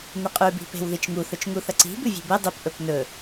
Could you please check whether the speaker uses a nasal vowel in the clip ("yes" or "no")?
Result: no